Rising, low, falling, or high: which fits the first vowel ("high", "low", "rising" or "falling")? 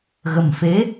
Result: low